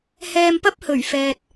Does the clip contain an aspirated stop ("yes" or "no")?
no